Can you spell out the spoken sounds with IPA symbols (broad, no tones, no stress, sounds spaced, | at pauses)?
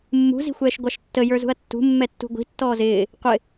mː ṳ z i̤ xʷ ɛː ʃ ɡʷ ɑ ʃ tː ə j ə˞ z ṳ ɐ̯ tː ṳ mː ɛ tː ṳ ɡʷ i̤ tː ɔː z ɪː | qʷ ɪ